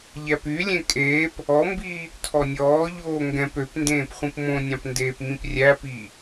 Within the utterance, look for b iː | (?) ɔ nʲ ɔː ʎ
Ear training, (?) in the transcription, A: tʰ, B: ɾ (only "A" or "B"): A